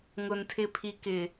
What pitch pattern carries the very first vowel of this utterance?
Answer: low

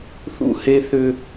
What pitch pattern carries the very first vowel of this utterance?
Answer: high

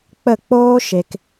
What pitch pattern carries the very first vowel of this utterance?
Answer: falling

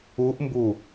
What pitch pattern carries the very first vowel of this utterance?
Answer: rising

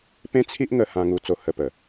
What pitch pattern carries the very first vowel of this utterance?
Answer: high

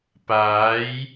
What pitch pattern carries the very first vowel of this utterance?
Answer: rising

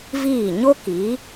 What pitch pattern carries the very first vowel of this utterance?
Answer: falling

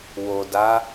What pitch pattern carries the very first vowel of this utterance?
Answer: low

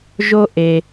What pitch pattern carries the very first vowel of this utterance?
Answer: high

